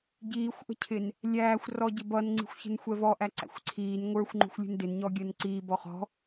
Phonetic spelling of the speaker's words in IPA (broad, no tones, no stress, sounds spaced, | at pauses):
ɟ iː xʷ ʔ ə̤ cʰ ɪ n | lʲ æː xʷ r ɔ ɟ ɪ b ʌ n ŋ͡ǀ i̤ xʷ ç ə̤ n xʷ ɛ v ɔ ʔ æ ǀ æ̰ xʷ ǀʰ iː n ŋʷ ə˞ xʷ ŋ͡ǃ ṳ xʷ lʲ ṳ n d ɪ n ɲ ɔ ɡʲ əː n ǀ iː b ɔ χ ɔ̤